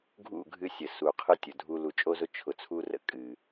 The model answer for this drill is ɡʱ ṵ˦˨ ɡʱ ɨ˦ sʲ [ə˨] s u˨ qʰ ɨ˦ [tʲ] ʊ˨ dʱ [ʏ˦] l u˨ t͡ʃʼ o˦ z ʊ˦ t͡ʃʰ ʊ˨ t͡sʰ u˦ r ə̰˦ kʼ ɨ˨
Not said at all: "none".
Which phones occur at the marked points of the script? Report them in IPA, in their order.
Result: ə˨, tʲ, u˦

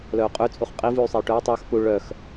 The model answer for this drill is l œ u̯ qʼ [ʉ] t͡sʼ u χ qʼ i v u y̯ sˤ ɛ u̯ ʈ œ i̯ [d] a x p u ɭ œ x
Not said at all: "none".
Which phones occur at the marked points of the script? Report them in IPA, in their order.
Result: ʉ, tˤ

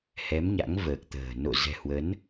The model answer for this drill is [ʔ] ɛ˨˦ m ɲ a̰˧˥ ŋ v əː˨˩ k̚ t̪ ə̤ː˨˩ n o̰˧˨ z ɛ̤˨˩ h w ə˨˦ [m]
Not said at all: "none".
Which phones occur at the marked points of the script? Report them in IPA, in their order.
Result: h, n

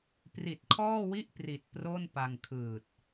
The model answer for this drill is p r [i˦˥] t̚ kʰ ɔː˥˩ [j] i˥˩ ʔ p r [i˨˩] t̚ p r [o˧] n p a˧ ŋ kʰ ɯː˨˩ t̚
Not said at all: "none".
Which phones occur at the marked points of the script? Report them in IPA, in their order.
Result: i˨˩, w, i˨˩, o˥˩

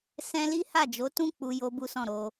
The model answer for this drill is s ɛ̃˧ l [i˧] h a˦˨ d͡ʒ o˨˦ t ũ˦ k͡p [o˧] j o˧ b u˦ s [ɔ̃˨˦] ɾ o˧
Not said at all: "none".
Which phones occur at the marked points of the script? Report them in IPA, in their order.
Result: i˦, u˧, ɔ̃˦˨

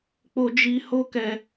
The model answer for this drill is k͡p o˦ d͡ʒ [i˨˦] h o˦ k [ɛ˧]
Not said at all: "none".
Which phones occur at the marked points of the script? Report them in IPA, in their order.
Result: i˦, ɛ˧

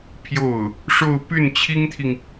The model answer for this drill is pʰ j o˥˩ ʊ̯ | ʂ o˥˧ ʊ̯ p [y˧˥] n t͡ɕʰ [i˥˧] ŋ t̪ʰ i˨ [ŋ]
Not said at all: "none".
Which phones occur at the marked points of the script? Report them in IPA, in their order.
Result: y˥˩, i˥, ŋ

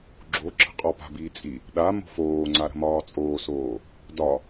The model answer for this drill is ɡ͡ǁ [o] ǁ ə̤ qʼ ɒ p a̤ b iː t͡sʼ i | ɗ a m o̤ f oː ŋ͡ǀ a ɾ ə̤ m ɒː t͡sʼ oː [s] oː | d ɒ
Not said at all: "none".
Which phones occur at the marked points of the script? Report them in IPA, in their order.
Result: o, s

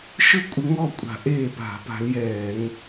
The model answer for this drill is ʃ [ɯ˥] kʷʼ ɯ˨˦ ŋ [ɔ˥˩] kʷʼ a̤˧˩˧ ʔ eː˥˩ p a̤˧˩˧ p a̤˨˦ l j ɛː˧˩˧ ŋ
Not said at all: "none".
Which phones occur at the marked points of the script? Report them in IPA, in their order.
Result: ɯ˥, ɔ˥˩

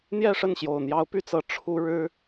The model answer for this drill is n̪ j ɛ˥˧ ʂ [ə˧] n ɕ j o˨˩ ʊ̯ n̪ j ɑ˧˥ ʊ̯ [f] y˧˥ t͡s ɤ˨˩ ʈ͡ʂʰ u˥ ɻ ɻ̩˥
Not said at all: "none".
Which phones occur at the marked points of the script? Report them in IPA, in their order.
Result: ə˥˩, p

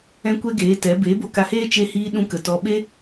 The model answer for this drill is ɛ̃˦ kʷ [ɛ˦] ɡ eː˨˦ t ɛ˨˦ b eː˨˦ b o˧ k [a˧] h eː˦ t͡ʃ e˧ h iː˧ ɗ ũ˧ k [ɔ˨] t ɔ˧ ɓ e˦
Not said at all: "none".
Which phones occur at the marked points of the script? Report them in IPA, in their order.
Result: ɛ˦, a˧, ə˨

